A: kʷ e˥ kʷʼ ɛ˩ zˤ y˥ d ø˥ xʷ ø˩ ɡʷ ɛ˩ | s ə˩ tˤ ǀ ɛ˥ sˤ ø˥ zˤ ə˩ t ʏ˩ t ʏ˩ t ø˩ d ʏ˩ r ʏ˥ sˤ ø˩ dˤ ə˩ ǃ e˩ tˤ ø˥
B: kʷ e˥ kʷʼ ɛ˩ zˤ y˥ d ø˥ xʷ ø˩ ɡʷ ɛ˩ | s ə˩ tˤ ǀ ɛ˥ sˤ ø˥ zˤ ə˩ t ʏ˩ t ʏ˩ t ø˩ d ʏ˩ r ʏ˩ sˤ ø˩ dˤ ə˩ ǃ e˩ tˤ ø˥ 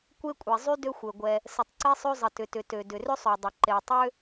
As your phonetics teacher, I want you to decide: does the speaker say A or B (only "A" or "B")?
A